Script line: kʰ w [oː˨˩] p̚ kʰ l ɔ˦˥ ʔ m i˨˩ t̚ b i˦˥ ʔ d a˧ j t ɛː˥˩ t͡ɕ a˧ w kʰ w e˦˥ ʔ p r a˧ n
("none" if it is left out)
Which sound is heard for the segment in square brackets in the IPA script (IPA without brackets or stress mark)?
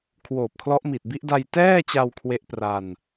oː˨˩